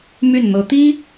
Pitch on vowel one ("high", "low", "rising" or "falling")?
falling